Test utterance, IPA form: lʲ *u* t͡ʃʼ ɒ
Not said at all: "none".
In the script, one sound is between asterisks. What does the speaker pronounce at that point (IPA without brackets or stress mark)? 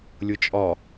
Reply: ʊ